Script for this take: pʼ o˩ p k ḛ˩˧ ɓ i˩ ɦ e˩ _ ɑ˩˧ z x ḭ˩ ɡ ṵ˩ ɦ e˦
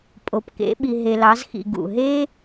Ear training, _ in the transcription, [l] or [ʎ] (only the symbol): l